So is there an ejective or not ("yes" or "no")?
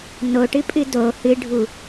yes